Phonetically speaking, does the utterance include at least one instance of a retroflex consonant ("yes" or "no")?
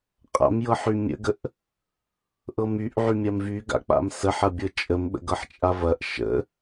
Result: no